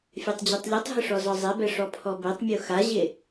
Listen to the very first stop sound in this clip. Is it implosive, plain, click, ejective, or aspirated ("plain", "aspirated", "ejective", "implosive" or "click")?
plain